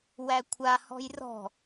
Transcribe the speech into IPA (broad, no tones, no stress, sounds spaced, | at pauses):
w æ kʷʰ a h ɔ̤ j r ɔ̤